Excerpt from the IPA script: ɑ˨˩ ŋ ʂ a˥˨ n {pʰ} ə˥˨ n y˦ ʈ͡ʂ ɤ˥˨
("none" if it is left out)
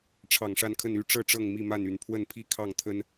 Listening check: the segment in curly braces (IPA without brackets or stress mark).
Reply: kʰ